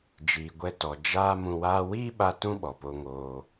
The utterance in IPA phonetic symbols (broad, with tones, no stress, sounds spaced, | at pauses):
d͡ʒ iː˨ ɡʷ ɛ˧ t ɔ˨ d͡ʒ aː˦ m ũ˧ w aː˦ w iː˦ ɓ a˧ t ũ˦ ɓ ɔ˨ p o˧ ŋ oː˧